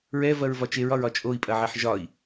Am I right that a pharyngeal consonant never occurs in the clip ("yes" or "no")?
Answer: no